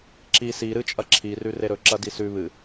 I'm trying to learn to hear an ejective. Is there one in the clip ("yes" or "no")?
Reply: yes